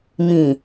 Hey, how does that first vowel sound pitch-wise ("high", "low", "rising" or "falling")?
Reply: low